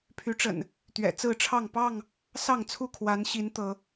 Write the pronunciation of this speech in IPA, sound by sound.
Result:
pʰy˨˦ʈ͡ʂə̰˨˩n | t̪ɥɛ̰˨˩t͡sɹ̩˥˨ʈ͡ʂʰɑ˥˨ŋ pɑ˥˨ŋ | sɑ˥˨ŋt͡sʰu˥˨ kʰwa˨˦nɕi˨˦n t̪ɤ˨˦

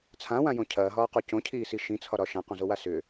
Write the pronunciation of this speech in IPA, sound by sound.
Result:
t͡sʰãwãjõ cʰɐːɦɒːqo cõcʰiːsi ʃĩt͡sʰɒɾɒ ʃãqõzowa sʏ

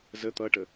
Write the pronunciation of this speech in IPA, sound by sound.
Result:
zə t̪ʌʈə

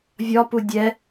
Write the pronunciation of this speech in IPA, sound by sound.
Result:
vʲɒpu dʲɛ

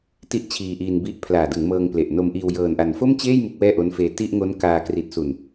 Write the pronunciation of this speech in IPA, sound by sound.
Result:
ti˥˩ʔt͡ɕʰiː˧ʔiː˧nbi˦˥ʔ pʰlaː˨˩dɯ˩˦ŋ mɤː˧ŋple˨˩ʔno˧mʔiː˧w jɤː˨˩nʔa˨˩n fo˥˩mt͡ɕeː˥˩j mu˦˥k̚wɛː˥˩ʔo˦˥nfeː˧ ti˥˩ʔŋo˦˥nkaː˧ kri˨˩t̚su˨˩n

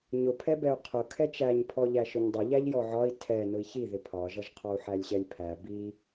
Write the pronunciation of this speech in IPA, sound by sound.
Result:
ɲʊpʰɛ bɛu̯qʰʊ kʰɛt͡ʃæɲ pʰɔʎæʃʊɲdˤʊ ʎæʎjɔʕɒi̯ tʰɛ nʊi̯çiðɪ pʰɒʒʌʒqʰɒu̯ ħælʲɕɛlʲpʰæ bi

